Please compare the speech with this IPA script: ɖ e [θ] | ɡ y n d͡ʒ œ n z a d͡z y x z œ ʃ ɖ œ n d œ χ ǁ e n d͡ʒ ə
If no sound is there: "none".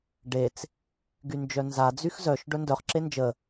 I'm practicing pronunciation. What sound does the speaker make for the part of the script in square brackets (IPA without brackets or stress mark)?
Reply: t͡s